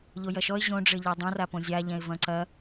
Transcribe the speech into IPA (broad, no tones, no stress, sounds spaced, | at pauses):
ʎ o j ɐ ʃ ɔ ɪ̯ ʑ õ ɖ͡ʐ ɘ ʎ a dˤ ũ r a p õ zʲ a ʎ ɛ̃ ɪ̯ v ɐ̃ ǀ ɐ